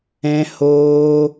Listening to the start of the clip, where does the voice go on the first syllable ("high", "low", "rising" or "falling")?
high